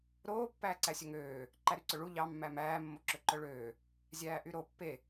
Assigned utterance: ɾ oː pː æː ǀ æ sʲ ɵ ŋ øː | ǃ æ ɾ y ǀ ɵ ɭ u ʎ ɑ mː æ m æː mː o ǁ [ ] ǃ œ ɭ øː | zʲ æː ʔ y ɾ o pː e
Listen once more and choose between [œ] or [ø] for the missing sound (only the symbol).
ø